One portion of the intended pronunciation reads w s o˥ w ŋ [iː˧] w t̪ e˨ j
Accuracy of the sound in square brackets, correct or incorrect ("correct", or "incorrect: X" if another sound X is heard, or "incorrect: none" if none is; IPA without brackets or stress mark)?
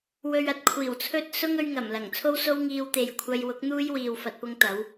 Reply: correct